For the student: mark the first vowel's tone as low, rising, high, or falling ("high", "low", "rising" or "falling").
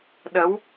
rising